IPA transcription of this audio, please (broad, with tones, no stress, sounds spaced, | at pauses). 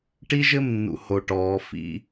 ʈ i˦ ʒ ɘ˦˨ m nː ṵ˨ h o˨ ʈ ɔː˨˦ f ḭ˦